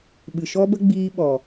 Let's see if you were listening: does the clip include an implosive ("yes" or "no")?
yes